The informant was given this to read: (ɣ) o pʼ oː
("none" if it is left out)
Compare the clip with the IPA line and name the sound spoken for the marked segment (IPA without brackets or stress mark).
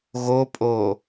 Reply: ɣ